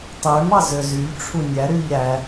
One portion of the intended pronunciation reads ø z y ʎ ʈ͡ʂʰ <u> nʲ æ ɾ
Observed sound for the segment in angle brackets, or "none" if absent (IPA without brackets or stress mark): u